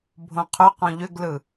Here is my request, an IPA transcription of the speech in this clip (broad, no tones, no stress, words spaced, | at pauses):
bʱõqʰʏ qõʎʏɡlɯ